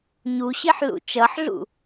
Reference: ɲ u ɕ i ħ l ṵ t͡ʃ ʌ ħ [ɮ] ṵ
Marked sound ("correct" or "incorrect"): correct